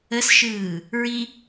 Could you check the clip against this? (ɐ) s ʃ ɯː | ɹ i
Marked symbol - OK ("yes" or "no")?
no